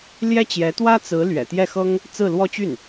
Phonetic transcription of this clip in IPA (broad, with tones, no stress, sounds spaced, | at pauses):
l j ɛ˥ t͡ɕ j ɛ˧˥ t̪ w ä˥ t͡s ɹ̩˧˥ l ɥ ɛ̰˨˩ t̪ j ɛ˥˩ x ɤ˥ ŋ | t͡s ɹ̩˥˧ l w ɔ˥˧ t͡ɕ y˥˩ n